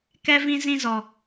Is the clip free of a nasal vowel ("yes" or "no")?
no